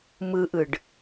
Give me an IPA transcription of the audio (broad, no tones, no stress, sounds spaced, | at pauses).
m ɯ ʔ ɯ ɖ